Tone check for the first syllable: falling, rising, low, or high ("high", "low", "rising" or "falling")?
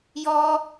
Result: high